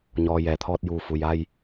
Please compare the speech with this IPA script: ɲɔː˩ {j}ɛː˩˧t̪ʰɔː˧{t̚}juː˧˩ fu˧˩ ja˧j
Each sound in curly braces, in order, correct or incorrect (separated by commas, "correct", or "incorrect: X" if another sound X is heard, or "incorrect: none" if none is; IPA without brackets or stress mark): correct, correct